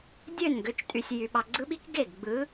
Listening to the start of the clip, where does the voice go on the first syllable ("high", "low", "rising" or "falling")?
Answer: falling